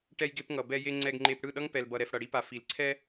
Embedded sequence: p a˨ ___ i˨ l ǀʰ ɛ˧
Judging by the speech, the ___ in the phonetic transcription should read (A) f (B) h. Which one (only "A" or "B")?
A